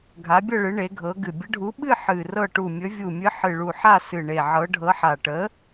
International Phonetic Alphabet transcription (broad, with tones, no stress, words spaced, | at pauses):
ɡʱa˨˥bʲɤ˥˨ɭɨ˨˥ ɳe˨˥ɡʱɤ˨˥ɡɨ˧˩ bʲə˨˥ɖʱu˨˥ɓɨ˥˨ ħɨ˧˩rɤ˥˨ ʈu˧˩mʲɵ˨˥vʲu˧˩ mʲɨ˨˥ ħɨ˧˩ɭu˧˩ħa˥˨ sɨ˧˩ɳe˧˩ ʕɤ˨˥ ɖʱɤ˨˥ħa˧˩ ʈə˨˥